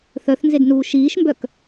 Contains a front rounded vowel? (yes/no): yes